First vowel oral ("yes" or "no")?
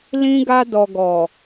no